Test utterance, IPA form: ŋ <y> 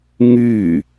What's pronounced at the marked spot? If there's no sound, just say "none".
y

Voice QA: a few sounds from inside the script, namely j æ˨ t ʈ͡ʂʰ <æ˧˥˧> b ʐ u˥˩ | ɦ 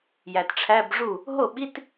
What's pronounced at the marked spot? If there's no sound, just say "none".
æ˧˥˧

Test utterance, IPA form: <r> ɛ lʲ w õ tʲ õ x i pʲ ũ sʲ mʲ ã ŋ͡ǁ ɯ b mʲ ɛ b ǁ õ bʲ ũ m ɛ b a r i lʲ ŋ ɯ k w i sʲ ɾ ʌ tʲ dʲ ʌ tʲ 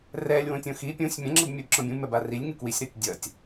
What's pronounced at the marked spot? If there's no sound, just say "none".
r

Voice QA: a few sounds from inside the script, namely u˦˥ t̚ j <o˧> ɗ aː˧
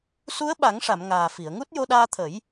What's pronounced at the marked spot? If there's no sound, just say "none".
o˧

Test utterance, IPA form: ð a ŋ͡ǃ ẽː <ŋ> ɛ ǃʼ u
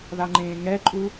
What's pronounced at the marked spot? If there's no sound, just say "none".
ŋ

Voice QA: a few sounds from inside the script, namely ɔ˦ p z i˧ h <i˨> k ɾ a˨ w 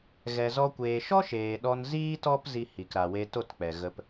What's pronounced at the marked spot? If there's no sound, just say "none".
i˨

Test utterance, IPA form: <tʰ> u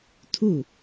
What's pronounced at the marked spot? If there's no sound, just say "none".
tʰ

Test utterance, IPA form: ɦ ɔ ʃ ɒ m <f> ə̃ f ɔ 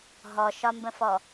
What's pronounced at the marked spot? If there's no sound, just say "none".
b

